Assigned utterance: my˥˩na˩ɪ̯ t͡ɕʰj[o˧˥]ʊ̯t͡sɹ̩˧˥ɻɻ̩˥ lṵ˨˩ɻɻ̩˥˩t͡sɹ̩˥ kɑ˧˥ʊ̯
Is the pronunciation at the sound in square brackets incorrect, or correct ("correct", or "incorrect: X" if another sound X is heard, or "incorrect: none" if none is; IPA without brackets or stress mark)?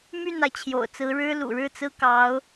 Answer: incorrect: o̰˨˩